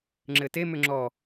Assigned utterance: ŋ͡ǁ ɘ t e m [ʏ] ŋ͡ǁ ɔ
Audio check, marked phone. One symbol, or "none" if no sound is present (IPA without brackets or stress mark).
ʏ